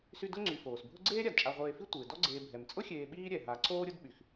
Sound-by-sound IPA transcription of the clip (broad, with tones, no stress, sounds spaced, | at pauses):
s y˦ d ʊ˥ ŋ͡ǀ y˨ f oː˩ s bʱ ʊ˦ ɡ͡ǀ eː˥ ɾʲ a˩ d t͡ʃʼ a˨ ʁʷ eː˨ f i˦ tʷ ɪː˩ d ɔ˦ ɡ͡ǀ eː˨ bʱ ɛ˩ m t͡sʼ ʊ˥ xʲ eː˨ ɓ iː˥ ɾʲ ɛ˩ ɦ a˨ ǀ oː˥ ɾʲ ʊ˥ d ɓ y˩ x